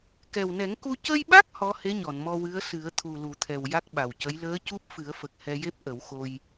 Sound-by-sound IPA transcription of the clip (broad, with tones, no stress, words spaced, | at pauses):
kɛ˨˩wnɛ˨˩˦ŋku˧ cə˧jɓa˦˥k̚ hɔ˧˥he˧˥ɲɔ˨˩˨nmɔ˧ wɨ˧˥ə̯sɨ˨˩˦ə̯ t̪ʰu˨˩lu˨˩˨t̪ʰɛ˨˩w ja˦˥k̚ɓa˨˩wcə˧˥j ləː˧˥cu˦˥p̚ fɨ˨˩˦ə̯fə˨˩k̚ hɛ˧je˦˥p̚ ʔə˨˩˦wxo˧j